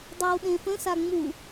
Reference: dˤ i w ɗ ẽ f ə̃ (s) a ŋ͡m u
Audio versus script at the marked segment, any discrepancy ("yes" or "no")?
no